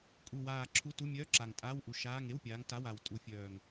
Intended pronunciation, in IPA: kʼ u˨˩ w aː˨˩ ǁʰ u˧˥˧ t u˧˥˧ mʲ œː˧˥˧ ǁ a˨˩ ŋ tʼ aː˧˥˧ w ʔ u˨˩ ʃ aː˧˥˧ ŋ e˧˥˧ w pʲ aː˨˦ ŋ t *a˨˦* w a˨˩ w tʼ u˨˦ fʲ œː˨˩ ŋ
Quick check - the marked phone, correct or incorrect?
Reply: incorrect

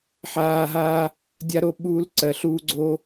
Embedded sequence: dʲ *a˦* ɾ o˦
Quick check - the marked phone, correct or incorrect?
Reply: correct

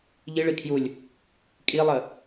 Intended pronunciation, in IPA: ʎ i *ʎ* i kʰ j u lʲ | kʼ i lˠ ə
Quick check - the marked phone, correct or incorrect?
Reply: incorrect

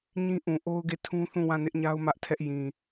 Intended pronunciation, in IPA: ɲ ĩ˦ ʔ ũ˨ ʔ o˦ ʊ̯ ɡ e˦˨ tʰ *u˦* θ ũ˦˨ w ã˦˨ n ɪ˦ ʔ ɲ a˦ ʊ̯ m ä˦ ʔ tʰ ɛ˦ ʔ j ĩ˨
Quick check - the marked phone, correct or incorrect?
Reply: incorrect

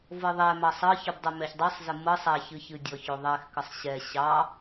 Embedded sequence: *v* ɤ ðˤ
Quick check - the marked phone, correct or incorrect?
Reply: correct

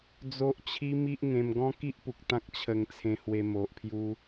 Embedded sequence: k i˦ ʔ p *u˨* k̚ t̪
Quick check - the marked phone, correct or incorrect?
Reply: correct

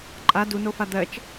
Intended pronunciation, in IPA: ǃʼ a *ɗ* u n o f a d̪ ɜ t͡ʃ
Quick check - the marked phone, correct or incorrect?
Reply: incorrect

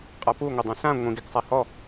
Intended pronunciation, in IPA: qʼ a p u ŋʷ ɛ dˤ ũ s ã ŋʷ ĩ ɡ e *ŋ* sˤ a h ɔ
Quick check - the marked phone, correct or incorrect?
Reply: incorrect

